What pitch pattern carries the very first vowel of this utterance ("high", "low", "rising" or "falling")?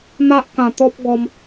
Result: high